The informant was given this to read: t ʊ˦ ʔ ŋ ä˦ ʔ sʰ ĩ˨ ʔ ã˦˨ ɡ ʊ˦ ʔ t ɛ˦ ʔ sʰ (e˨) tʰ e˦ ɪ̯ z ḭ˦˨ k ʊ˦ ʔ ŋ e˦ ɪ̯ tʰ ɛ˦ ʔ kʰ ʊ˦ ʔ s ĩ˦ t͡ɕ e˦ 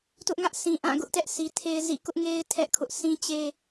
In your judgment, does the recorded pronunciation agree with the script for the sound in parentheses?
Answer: no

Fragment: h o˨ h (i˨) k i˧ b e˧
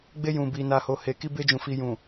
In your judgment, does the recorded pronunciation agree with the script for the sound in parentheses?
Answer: no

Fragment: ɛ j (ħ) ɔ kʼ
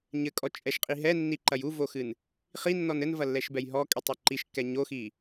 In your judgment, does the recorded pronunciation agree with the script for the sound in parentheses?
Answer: no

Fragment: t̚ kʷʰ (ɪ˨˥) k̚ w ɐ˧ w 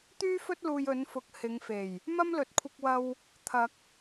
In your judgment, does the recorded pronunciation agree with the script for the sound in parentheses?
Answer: no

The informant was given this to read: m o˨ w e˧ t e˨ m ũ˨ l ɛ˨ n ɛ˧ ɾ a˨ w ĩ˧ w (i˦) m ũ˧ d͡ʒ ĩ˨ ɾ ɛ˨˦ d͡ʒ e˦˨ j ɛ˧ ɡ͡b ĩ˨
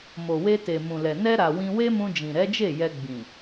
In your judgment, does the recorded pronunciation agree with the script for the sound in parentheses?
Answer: no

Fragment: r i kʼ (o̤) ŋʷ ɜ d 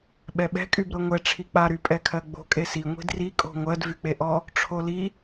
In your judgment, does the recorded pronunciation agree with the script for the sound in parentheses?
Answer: yes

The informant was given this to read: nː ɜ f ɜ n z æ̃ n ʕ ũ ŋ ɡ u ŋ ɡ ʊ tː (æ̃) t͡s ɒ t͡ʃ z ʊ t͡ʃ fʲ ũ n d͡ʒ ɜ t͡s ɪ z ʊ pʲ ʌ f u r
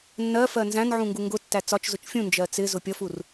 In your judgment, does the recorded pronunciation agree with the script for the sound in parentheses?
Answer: no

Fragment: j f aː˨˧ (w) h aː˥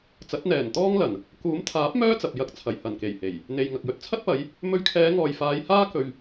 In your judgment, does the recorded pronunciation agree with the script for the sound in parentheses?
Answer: no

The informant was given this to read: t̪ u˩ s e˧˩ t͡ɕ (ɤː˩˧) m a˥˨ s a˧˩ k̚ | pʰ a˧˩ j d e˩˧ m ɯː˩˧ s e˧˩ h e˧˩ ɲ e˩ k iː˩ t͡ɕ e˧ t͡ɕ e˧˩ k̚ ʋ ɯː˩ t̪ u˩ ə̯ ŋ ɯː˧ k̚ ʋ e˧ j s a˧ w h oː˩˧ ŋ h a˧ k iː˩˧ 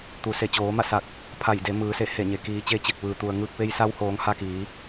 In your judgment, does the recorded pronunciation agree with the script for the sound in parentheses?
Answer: no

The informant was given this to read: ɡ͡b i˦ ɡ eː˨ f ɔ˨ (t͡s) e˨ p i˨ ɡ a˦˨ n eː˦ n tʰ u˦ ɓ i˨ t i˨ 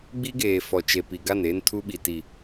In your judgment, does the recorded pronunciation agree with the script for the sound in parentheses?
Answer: no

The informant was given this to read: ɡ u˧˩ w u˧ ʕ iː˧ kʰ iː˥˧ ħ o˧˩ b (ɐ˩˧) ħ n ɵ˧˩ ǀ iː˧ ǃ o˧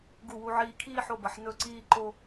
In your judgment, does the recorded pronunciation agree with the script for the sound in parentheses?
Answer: yes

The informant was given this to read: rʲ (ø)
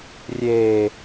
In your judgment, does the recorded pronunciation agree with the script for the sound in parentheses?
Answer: no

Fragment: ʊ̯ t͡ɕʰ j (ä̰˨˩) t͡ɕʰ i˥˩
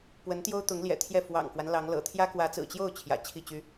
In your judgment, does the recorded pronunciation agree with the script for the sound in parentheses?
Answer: yes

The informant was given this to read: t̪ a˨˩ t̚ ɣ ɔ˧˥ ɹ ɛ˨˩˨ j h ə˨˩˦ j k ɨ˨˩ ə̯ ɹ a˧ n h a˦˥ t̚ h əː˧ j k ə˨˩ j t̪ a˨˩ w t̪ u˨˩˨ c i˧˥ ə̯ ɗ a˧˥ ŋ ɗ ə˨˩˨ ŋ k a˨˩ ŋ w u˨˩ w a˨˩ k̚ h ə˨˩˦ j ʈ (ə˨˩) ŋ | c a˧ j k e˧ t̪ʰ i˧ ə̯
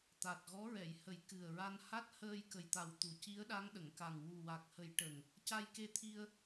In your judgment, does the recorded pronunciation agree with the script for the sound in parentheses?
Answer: yes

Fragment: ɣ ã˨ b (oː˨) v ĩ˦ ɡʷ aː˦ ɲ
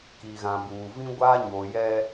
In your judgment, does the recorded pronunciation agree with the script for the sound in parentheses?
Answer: no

